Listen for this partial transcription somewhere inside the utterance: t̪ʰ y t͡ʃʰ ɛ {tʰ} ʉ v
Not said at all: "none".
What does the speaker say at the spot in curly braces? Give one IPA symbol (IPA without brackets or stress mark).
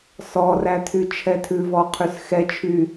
tʰ